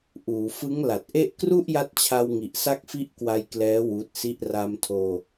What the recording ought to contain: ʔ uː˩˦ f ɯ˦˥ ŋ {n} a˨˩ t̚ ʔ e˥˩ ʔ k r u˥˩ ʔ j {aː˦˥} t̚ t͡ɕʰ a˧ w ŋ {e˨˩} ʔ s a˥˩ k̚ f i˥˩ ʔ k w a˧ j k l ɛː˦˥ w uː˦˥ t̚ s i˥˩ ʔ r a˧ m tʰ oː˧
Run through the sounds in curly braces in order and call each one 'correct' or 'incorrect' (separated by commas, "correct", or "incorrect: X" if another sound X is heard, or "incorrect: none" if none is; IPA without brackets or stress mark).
incorrect: l, incorrect: a˦˥, incorrect: i˨˩